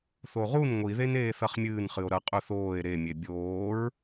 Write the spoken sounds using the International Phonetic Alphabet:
θ o ʁ u n ŋʷ i ð e n eː θ ɐ χ mʲ ɨː n χ ɨ o̯ ɾ ɐ qʼ ɵ θ oː e̯ ɾ e mʲ e bʲ oː ɹ

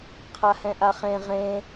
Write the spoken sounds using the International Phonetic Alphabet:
qʰ a h ɛ̃ ʔ a χ ẽ ʁ ẽ

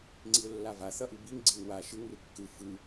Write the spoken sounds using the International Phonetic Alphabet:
ŋ͡ǀ i ʊ̯ lː a v a θ ʌ ʔ ɯ b i ŋ ɡ͡ǀ i ŋ w a ʃ ɯ ŋ r ɯ kː ɯ f ɯ

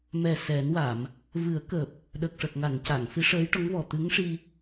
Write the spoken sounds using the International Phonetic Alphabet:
m ɛ˨˩ s ɛ˨˩˦ n w a˨˩˨ m | v ɨ˨˩˦ ə̯ k əː˨˩ p̚ | ɗ ə˨˩ k̚ ʂ ə˨˩ k̚ ŋ a˨˩˨ n c a˨˩˨ ŋ f i˧˥ ʂ əː˧˥ j ʈ ɔ˧˥ ŋ v ɔ˨˩ t̪ ɨ˧˥ ŋ ʂ i˧

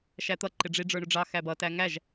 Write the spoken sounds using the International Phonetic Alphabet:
ʃ æ t̪ ʌ ǃ ɪ ɖ͡ʐ i ɖ͡ʐ ə˞ ɳ ʊ ɖ͡ʐ ɑ x æ b ʌ t æ ŋ æ ʒ

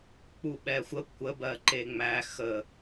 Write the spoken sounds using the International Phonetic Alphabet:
k͡p u ɓ ɛ xʷ ə kʷ ə b ɜ ǃ e ŋ͡m æ x ə

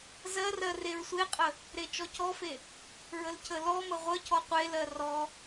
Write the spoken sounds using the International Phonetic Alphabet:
z ɜ r ɜ r e ɹ sʷ e qʼ ə | ɾ e t͡ʃ ɔ cʰ ɔ f e | ɹ ə l cʰ ə l ɔ m ə ʁʷ ə cʰ ɔ qʷ e l ɜ r ɔ

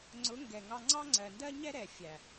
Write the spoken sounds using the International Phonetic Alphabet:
ŋ͡ǀ ʊ˨˦ ŋ ɡ ɛ˨ ŋ ɑ˧ ŋ͡ǀ ɑ˦ ŋ͡ǀ ɜ˨ n d ɜ˦ ɲ ɛ˦ ɾ ɛ˨ fʲ æ˨

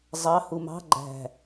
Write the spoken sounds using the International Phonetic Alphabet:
zˤ ɑ h u m ɑ̤ ɡ͡ǃ æ̤

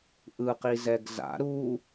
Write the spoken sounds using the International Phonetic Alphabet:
ʔ ɯ q i z ɛ ɡ z a̰ ɾ u

